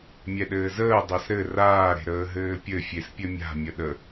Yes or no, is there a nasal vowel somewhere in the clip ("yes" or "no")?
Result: no